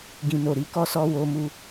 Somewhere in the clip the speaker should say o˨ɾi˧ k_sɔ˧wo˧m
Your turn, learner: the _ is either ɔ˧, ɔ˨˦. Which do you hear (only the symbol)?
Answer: ɔ˧